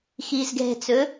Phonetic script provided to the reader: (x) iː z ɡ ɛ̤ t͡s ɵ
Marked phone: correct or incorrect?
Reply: correct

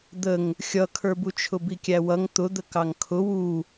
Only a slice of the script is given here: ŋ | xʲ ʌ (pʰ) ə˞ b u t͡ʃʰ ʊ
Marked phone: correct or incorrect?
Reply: incorrect: kʰ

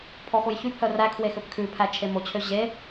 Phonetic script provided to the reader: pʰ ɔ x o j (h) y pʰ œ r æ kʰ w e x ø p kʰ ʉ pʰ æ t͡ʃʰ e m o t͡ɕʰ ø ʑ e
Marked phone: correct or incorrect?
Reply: incorrect: ç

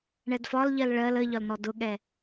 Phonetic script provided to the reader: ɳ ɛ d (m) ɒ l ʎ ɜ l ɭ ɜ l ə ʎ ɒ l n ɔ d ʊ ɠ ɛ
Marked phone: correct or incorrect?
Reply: incorrect: f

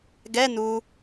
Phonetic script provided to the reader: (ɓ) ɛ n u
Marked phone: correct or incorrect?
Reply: incorrect: ɡ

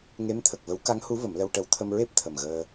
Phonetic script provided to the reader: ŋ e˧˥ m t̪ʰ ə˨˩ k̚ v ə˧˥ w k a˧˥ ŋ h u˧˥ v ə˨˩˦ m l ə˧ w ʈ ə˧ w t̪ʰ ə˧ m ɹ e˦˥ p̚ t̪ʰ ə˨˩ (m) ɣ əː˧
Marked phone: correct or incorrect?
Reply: correct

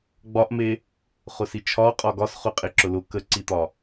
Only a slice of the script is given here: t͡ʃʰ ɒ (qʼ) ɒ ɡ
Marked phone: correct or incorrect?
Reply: correct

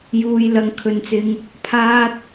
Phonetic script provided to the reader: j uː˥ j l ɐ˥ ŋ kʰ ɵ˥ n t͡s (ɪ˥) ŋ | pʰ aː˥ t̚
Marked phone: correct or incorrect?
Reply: correct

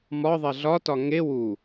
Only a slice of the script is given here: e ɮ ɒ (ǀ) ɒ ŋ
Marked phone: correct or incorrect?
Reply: incorrect: t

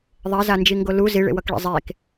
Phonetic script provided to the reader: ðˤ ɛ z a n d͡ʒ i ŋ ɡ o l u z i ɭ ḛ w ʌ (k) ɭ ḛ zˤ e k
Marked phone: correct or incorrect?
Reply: correct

